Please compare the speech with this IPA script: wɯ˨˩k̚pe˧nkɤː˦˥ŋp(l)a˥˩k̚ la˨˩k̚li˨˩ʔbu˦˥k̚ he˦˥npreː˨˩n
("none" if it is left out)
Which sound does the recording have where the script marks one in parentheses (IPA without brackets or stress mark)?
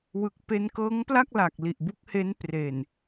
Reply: l